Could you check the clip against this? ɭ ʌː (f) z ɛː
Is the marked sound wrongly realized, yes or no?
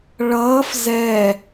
no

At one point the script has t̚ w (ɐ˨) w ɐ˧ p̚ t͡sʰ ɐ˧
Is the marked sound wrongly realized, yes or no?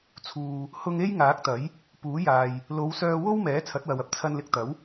no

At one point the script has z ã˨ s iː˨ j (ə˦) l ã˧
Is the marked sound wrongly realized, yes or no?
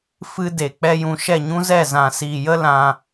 no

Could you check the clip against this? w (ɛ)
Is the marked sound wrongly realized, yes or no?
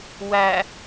yes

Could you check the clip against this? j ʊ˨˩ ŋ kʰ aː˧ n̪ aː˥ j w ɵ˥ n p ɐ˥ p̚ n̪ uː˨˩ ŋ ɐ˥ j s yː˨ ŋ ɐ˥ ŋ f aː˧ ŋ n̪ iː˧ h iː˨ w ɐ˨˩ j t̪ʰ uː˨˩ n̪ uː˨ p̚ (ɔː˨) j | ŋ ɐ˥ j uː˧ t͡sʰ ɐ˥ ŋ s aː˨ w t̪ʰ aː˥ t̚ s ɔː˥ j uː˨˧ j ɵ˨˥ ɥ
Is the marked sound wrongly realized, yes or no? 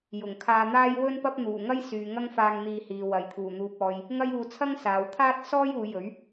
no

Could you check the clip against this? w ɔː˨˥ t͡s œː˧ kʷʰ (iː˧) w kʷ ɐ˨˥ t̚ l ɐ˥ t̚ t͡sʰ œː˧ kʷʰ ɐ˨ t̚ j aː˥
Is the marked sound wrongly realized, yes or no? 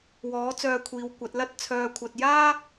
yes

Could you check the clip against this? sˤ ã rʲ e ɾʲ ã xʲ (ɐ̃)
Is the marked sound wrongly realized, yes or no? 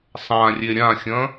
no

